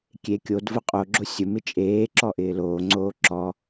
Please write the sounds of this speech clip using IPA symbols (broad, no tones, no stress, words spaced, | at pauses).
kʲe kʲod vʊqʼoɡ͡ǁo sʲʊmɪ t͡ʃʼeː ǁɔʔɪːloːŋ͡ǀoː ǁɔ